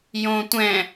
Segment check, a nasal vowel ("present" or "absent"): present